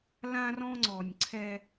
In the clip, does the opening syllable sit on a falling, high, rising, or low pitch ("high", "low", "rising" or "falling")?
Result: high